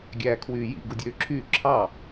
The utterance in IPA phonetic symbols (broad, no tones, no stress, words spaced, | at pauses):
ɡʲæːkʰwyːjḭ ɡudʲøːǁʰyː ǁʰɑ